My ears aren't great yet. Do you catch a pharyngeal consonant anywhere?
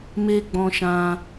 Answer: no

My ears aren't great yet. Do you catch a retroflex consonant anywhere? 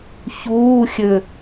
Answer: no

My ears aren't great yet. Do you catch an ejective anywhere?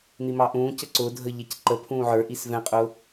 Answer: yes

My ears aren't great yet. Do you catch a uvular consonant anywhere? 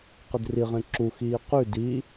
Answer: yes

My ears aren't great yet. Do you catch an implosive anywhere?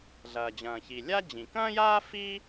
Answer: no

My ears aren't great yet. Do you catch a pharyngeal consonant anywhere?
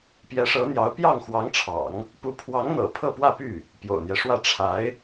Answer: no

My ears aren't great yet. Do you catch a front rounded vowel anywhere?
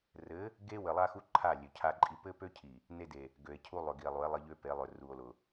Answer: yes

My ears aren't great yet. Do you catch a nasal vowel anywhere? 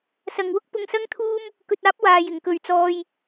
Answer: no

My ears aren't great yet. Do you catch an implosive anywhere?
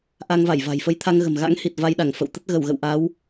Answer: yes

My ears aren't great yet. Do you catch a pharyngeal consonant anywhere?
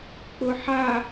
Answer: yes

